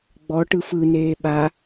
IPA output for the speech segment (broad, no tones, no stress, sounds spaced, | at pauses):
ɡ͡b ɔ ʈ ɯ f ɯ n eː ɓ a